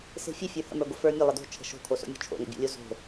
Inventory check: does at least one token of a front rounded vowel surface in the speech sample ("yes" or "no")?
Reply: no